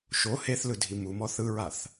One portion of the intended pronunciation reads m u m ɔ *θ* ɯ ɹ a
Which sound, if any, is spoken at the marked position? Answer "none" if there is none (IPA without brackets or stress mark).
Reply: θ